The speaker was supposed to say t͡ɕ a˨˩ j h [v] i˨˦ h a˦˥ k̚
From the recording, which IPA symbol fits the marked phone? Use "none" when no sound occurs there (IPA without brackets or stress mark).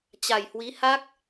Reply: w